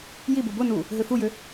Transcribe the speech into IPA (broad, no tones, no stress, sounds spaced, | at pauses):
j i b u b ʊ n u | ɦ ø f u j ʏ